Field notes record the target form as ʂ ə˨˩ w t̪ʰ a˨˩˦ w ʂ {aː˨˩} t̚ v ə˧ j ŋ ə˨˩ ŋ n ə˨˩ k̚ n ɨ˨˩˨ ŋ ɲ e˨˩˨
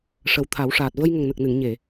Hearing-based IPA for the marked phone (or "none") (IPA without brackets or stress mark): aː˨˩